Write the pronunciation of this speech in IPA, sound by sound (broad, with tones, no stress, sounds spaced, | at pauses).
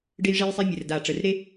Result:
ɖ e˥ j ʐ e˥ j sˤ e˥ mʲ ɘ˩˧˩ r d a˧˩˧ ʈ͡ʂ ə˩˧˩ r ɾ e˥